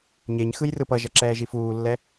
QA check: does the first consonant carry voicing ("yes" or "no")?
yes